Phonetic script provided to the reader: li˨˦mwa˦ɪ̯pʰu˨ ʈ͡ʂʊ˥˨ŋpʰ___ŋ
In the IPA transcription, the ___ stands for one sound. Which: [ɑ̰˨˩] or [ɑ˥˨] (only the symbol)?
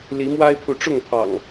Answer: ɑ̰˨˩